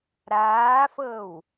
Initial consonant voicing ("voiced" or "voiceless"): voiced